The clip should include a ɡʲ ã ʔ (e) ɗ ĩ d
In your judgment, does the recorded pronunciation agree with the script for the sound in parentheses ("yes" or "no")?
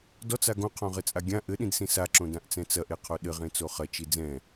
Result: no